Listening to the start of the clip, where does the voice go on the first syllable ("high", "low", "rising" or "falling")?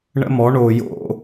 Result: high